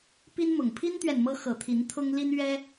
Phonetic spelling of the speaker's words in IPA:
pi˦nmʊ˨˩ŋ pʰi˦nt̪ɥɛ˨n mɤ˦ xɤ˨˩t̪ʰi˨˦nt̪ʰʊ˦ŋ li˦n ɥɛ˦

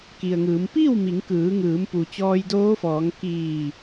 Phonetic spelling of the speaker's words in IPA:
ki˩ə̯ŋɯː˩˧m piː˥˨wmi˩˧ŋkɯː˩˧ŋɯː˩˧m pu˩ t͡ɕɔː˧jdoː˧˥fɔː˩˧ŋ kiː˧˩

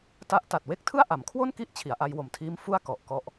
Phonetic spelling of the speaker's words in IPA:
ta˦˥ʔ ta˨˩t̚we˥˩k̚tʰɯ˥˩a̯ ʔa˩˦mkʰwo˥˩nki˦˥ʔ t͡ɕʰi˩˦a̯ʔa˧jwo˨˩mtʰiː˦˥m fu˥˩a̯ kɔ˨˩ʔkɔ˥˩ʔ

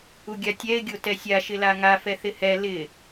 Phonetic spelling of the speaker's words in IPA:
uɡʲatʲɛɪ̯ ɡʲotɛsʲa ʃɪlaŋa fɛθɪhɛ lɪ

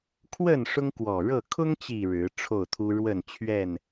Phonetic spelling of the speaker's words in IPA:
kʰwə˥˨n ʂʊ˦ŋkwɔ˨˩ɻɤ˥˨ kʰʊ˦ŋt͡ɕi˨˩ ɻɻ̩˨˦ ʈ͡ʂʰo˥˨ʊ̯t̪ʰu˦ ɻwə˥˨n t͡ɕʰɥɛ˥˨n

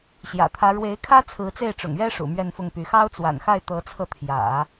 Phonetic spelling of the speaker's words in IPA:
ɕjä̰˨˩t̪ʰä˧˥ ɻwe˧˥ɪ̯kʰä˥ t͡sʰɹ̩˧˥t͡se˥˩ɪ̯ʈ͡ʂʊ̰˨˩ŋɥɛ˥ ʂṵ˨˩mɥɛ˥˧nfʊ˥˩ŋpy˧˥ xɑ˥ʊ̯t͡swa̰˨˩nxa˥˩ɪ̯ t̪ɤ˧˥t͡sʰɤ˧t̪ʰjä̰˨˩˦

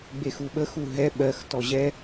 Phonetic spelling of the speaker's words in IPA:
ɡ͡bexuɓə xuɦɛ ɓɜx tɔʑɛ

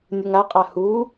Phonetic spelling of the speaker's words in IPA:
nʲɵŋaqʼa hu

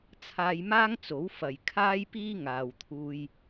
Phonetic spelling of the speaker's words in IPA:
t͡sʰaː˧jmaː˥ŋt͡so˨˥w fɐ˨˩j kʰaː˥jpiː˥ŋaː˨wt̪ʰuː˧j

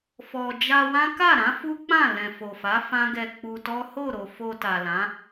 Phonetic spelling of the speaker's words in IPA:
fɔ˧ d͡ʒa˧wã˦ ka˦˨ɾã˨˦ fu˦k͡pã˦˨ lɛ̃˨fo˨fa˨˦ fã˦ɡɛ˧k͡pu˧tɔ˦ ho˦˨ɾo˨ fo˧ta˨lã˨˦

